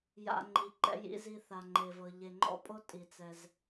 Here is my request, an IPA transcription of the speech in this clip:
j a̰˨ ŋ͡ǃ i˩ ǃ ɛ̰˨ j ḭ˨ z i˨ θ a˩ ŋ͡ǃ e˩ v ɤ˩ ʎ e˨ ŋ͡ǃ ɔ̰˦ pʼ o˦ tʼ i˩ t͡s ɛ˩ z

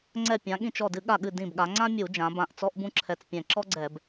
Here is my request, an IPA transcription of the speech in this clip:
ŋ͡ǀ ɛ˧˩ pʲ ã˩˧ ɠ ĩ˧˩ t͡ʃ ɔ˧˩ d ɨ˧˩˧ ɠ a˧˩ ɠ ɨ˧˩ d ĩ˧˩ b ɠ a˩˧ ŋ͡ǀ ã˥ mʲ u˧˩˧ d͡ʒ ã˩˧ b ã˧˩ ʔ t͡s ɔ˥ ʔ b ũ˥ ǁʰ ɛ˧˩ t͡s pʲ ɛ̃˧˩ ǁ ɔ˥ ɡ͡ǀ ɛ˧˩˧ b

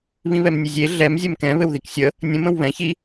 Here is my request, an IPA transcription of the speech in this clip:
β ĩ β ɛ m nʲ ɘ zʲ e ɮ ɛ m zʲ ɛ m k ɛ̃ β ɘ w ð i k sʲ ə | nʲ ə̃ m ə̃ w β ɛ̃ ç i

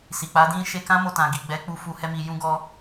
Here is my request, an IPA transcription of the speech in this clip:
s i˨ k͡p a˨˦ d ĩ˦ ʃ e˧ k ã˦ m o˧ t ã˨ ɡ i˨ ɡ͡b ɛ˨˦ k͡p u˧ f u˧ h ɛ˦ m i˧ j ũ˦ ɡ ɔ˦

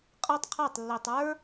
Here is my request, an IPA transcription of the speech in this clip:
qʼ ɤ˦ tˤ qʰ a˦˨ tˤ lː i˨ tˤ ə˞˦

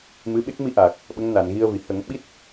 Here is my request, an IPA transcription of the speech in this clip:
m ɨ˧˥ ɓ e˦˥ k̚ m i˧ ʔ aː˨˩ k̚ | ɓ ə˧˥ ŋ n a˨˩˨ n ɣ i˧ ə̯ v i˨˩˨ h ə˨˩˦ ŋ ɓ i˦˥ t̚

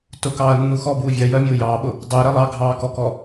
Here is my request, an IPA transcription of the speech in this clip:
t ʊ k ɑː ɐ̯ nː u x ɔ b uː vʲ ɜ j ɜ mʲ ʊː j ɑː ɓ ʊ | dˤ ɜ ɾ ɜ lˠ ɑ ɡʱ ɑː k ɔ k ɔ

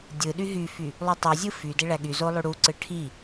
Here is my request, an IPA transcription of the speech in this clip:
dʲ ɯ ɗ y ɦ y f y | lˠ y tˤ u zʲ ɯ f y d e ɭ æ ɠ y z o lˠ y ɽ u ǀ ɯ ʈʰ i

